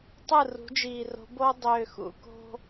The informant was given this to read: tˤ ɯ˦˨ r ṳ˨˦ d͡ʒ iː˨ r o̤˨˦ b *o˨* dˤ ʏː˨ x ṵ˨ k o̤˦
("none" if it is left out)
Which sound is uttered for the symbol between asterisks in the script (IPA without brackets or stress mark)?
o˦